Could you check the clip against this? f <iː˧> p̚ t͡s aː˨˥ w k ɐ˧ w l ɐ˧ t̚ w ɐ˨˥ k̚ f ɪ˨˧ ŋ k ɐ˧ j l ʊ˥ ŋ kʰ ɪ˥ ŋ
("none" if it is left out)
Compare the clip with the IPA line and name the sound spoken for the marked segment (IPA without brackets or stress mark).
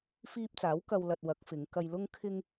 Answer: iː˧